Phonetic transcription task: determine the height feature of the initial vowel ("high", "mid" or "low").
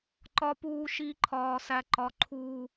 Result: low